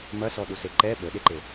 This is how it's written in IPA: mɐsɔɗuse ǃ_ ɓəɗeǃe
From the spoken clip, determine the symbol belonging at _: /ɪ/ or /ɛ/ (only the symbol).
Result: ɛ